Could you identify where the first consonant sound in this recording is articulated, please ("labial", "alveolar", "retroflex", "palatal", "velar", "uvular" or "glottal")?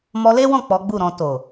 labial